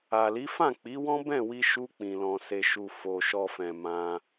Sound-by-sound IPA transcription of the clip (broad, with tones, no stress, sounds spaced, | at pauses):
a˨ l i˨˦ f ã˦˨ k͡p i˨˦ w ɔ̃˦ b ɛ̃˦˨ w i˧ ʃ u˧ k͡p ĩ˨ l ɔ̃˨ s e˨ ʃ u˨ f o˨ ʃ ɔ˨ f ɛ̃˨ m ã˧